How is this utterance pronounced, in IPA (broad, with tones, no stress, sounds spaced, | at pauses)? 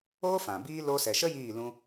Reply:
oː˦ f ã˨ b iː˦ l o˧ s ɛ˨ ʃ ə˦ j iː˦˨ l ũ˧